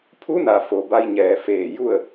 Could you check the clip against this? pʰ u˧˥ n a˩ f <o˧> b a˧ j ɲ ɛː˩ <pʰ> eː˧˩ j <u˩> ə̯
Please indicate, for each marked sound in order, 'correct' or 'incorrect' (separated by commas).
incorrect, incorrect, incorrect